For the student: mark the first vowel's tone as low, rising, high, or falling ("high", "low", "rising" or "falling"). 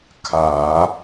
low